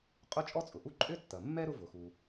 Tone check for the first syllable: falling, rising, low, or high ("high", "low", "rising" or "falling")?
high